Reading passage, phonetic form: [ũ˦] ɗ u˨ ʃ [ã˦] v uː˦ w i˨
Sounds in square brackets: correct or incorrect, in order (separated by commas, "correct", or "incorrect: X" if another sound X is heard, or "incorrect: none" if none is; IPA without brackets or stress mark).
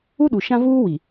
incorrect: u˦, correct